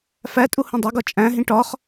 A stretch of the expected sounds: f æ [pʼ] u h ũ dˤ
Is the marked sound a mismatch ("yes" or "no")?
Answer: yes